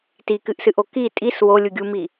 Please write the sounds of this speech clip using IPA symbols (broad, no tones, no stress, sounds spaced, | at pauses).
t i k ɨ ʔ s ɨ ʔ o k i tʼ i s w o lʲ u ɡʲ u m i